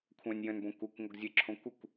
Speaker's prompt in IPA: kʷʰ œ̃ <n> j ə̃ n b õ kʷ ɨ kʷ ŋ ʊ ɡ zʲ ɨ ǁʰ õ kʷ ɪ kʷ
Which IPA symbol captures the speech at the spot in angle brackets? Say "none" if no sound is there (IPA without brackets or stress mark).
nʲ